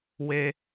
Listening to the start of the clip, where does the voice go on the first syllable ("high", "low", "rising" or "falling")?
low